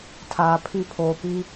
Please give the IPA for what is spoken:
tʰaː˨pʰi˦˨ pʰoː˨pi˦

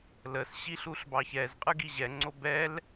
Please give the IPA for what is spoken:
ləs ɕiɬuɬbɑçɛz qʼɯɡiʑɛ ŋ͡ǀobɛl

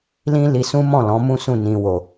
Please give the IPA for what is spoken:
lĩ˦ li˧sũ˦mɔ̃˦˨ lɔ̃˨˦mũ˦sũ˦˨ nĩ˨wo˨

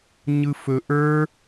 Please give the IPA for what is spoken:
ɲɯfɵ ʔə˞

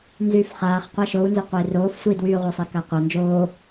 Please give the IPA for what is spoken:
nzyːfχaːχ qʷaʃou̯nzʏqʷəi̯ roːf sʷidwyːʁʷœsˤi kaqʷa nd͡ʒoː

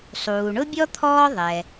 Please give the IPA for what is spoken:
sˤuː˩ɳʊ˥bʲɔ˥ t̪ʰɔː˥ðˤɛ˩

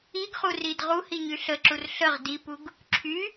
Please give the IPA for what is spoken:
iɡχurid ʁuhiɲy ɬəǁur ɬəʁ dipuɡ | ǁʰy

